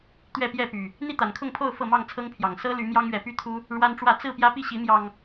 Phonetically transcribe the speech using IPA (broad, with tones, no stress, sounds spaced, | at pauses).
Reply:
t̪ ɥ ɛ˥˨ p j ɛ˥˨ p y˨˩ | n̪ i˥˨ t̪ a˨˩ n kʰ ʊ˥˨ ŋ pʰ o˥˨ ʊ̯ f ɤ˥˨ m ɑ˥˨ ŋ t͡sʰ ɤ˦ ŋ pʰ j ɑ˨˩ ŋ s ɤ˦ l y˨˦ m j ɑ˦ ŋ ɥ ɛ˨˦ p y˥˨ t̪ʰ u˦ | ɻ w a˦ n ʈ͡ʂ w ä˥˨ t͡s ɹ̩˥˨ p j ä˦ p i˥˨ ɕ i˨˦ m j ɑ˨˩ ŋ